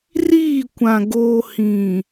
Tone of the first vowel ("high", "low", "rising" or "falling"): falling